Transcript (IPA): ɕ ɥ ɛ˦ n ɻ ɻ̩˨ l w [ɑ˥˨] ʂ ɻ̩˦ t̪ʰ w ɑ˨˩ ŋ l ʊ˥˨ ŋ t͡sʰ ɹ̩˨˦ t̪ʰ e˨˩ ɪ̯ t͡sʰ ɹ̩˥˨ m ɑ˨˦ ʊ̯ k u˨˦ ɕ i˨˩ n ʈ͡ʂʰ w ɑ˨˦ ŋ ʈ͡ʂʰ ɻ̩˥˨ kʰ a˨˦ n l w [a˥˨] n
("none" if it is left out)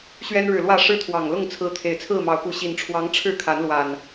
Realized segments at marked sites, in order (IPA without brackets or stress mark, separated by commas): ä˥˨, a˨˩